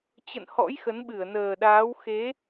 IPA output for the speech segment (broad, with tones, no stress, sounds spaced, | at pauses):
t͡ɕ ə̰˧˨ n h ɔ̰˧˥ j x ə˨˦ n ɓ ɨ˧˩ ə̯ n əː˨˩ ɗ aː˨˦ w x e˨˦